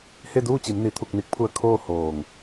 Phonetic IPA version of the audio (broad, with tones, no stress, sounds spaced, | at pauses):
h e˥˨ d uː˥˨ t͡ɕ i˩˧ m n i˩˧ t̪ʰ u˧˩ k̚ n i˧˥ k̚ pʰ u˧ ə̯ kʰ oː˥˨ h oː˩ ŋ